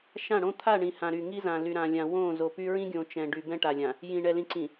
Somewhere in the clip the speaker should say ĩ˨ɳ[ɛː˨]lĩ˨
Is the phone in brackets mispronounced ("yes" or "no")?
yes